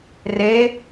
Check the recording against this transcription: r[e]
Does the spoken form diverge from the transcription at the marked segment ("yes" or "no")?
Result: no